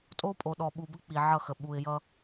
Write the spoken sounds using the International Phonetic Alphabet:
tʼ o˦ pʼ o˨ ɗ ɔ˨ ɓ u˨ b ə˦ k͡p i˨ ʕ ʌ˦˨ x ə˨ ɓ u˨ ɪ̯ j ʌ˦

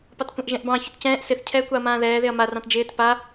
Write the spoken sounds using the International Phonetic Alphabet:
p ɑ t kʷ ɛ̃ ʔ ʒ ɛ̃ ʔ b ɑ̃ ç ʊ t c ɛ̃ː ʔ s ɪ θ cʰ ɛː kʷ ɑ ɐ̯ m ãː ð ɛː ð ɪ ɐ̯ m a r ɑ̃ t d͡ʒ ɪː t p a

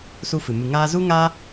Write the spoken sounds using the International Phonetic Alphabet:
s u˧ f ɨ˨ m ɨ˨ ŋ aː˧ z u˦ ŋ aː˦

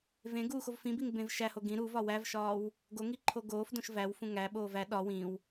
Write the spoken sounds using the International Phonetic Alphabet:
v ẽ ɡ uː x o v f ĩ b i ŋ b ẽ v ʃ æ h o ɡ ĩ ɾ u v ɒ w æ v ʃ ɒː w | ɡ o ŋ i ǃʰ o ɡ oː f d õ ʃ v æ w f ũ ŋ æ ɓ oː v æ ɗ ɒ w ĩ w

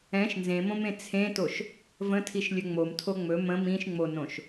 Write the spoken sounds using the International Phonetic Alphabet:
ɛ̃ ʃ n z ẽ m õ m ẽ t͡sʰ ẽ t o ʃ | v ə̃ tʰ i ʃ lʲ ɵ ŋ͡m o m tʰ o ŋ͡m ɵ m ə̃ m ĩ ʃ ŋ͡m o n õ ʃ

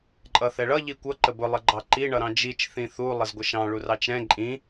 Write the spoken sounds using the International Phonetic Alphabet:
ǃʼ ʌ θ ɛ ɭ ʌ ʎ i kʷ ʌ ǃ ə b ʊ lˠ ə ɡ͡ǃ ɑ ǃ i ɳ ʌ ɾ ɑ̃ d͡ʒ i t͡ʃ θ ĩ θ u lˠ ə z ɡʷ ə ʃ ɑ̃ ɭ u r ɑ t͡ʃ ɾ ɛ̃ ǃʼ ĩ

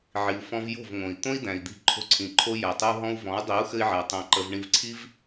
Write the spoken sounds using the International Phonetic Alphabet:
ʕ i˨ u̯ f ɔ̃˧ v j o̤˦˨ v ŋ õ˨ i̯ t̪ õ˦ i̯ d æ̃˨ i̯ d̪ i̤˧ ǃʰ o̤˧ ǀʰ ĩ˨ ǃʰ o˧ j æ˨ tˤ ɘ˧ u̯ ɦ ɔ̃˧ u̯ v ɔ̃˨˦ u̯ dˤ i˨˦ u̯ x ɘ˧ i̯ ʕ æ˨ tˤ æ̃˧ ǃ ə˧ v ɳ ĩ˧ v ǀʰ i˦ v

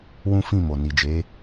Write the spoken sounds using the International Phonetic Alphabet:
w ũ˦ f ĩ˦˨ m o˨ n i˨ d͡ʒ e˨˦

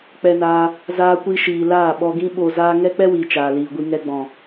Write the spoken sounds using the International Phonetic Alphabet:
k͡p ɛ˧ n aː˧ | z aː˧ kʷ i˧ ʃ iː˨ l aː˦˨ ɓ ɔ˧ ɡ ĩ˦ ɓ o˧ z aː˦ ŋ ɛ˦ k͡p ɛ˦ w iː˨ t͡ʃ aː˨ l iː˨ ɡʷ i˧ ŋ ɛ˧ ɡ͡b ɔ̃˨

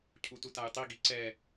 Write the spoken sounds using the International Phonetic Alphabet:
cʰ u t u t a j tˤ i ɡ i ǀ ɛ

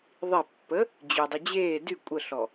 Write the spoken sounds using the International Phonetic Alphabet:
ðˤ i pː ə | d͡ʑ y dˤ y d͡ʑ eː d y kʷʼ ə ɬ ɔ

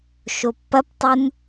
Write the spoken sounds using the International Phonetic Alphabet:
ʃ o pː ɐ p tˤ u n

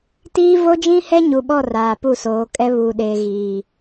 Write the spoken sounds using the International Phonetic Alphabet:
t iː˦ v o˦ d͡ʒ ĩ˦ h ɛ˦ ɲ u˨ ɓ ɔ˦˨ r aː˨ p u˦˨ s oː˨˦ kʼ ɛ˦ β u˨ ɗ e˨ ɣ iː˨

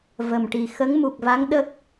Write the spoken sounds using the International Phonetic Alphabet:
v ə˨˩ m ʈ i˨˩ x ə˧˥ ŋ m u˨˩ k̚ v a˧˥ ŋ ɗ ə˦˥ k̚

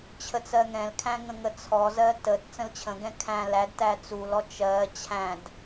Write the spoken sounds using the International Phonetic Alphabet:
t͡ɕʰ ə t͡s ɜ ŋ ɛ̃ l kʰ æ̃ ŋ ə̃ ŋ ə t͡sʰ ɔ z ɜ t ə t t͡s ə̃ l t͡ɕʰ ə̃ ɡ ɛ̃ kʰ æ̃ l æ d t æ t͡s u l ɔ t͡ʃ ɜ t͡ɕʰ æ̃ d

